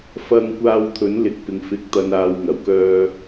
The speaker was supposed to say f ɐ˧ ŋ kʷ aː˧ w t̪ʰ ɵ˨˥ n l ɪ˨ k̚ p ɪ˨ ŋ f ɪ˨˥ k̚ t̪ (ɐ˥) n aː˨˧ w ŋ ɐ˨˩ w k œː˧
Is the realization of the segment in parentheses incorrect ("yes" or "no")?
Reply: yes